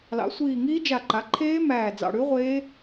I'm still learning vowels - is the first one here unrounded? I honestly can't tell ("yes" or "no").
yes